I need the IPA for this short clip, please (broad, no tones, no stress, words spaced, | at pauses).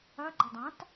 ɐɡ͡ǃɐ dˤãt